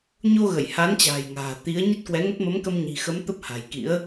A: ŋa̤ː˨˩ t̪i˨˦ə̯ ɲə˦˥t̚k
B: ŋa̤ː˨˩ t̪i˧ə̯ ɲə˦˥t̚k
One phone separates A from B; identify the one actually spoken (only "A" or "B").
A